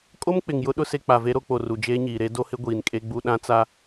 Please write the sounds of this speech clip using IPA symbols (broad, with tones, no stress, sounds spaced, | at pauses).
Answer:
kʼ o˦ m k͡p ɪ˨ ŋ j ʊ˦ ɗ ʊ˦ s e˦ k͡p a˨ v e˦ ɾ o˦ k͡p o˨ r u˨ d͡ʒ eː˦ ɲ iː˨ ɾ e˦ d o˦ h ɪ˦ ɡʷ iː˨ n kʼ e˦ ɡ͡b u˦ ɗ ã˦ t͡s a˦